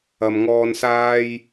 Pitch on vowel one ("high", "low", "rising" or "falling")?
low